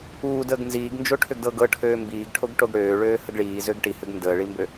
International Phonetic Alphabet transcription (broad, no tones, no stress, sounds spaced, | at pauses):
uː d əː ɡ n z iː ɡ n d͡ʒ o ʈʰ ʏ ɡ d ɤ ɡ ɤ ʈʰ øː m b iː ɡ ʈʰ o ɡ ʈ o ɡ ɽ øː ɭ øː h ə ɡ ɭ iː z ø ɡ ʈ i h ʏ ɡ n d əː ɭ i m b ø